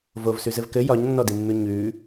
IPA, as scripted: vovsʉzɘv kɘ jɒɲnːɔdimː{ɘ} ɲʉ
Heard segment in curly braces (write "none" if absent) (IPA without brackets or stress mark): ʉ